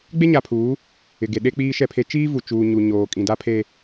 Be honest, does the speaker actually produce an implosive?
yes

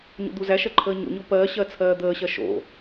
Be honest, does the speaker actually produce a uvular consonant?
no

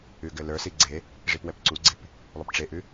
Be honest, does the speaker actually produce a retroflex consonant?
yes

